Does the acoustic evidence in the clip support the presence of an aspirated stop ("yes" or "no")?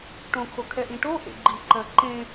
yes